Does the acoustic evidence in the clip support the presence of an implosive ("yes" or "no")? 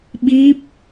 yes